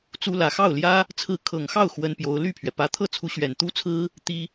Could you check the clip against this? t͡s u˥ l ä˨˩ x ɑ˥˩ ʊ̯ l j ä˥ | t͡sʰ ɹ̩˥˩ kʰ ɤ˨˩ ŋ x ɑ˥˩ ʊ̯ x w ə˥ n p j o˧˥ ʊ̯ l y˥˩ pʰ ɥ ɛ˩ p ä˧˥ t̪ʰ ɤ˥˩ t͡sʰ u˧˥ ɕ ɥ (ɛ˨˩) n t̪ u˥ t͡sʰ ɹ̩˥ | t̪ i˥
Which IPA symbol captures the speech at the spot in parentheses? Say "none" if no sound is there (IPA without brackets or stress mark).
ɛ˨˩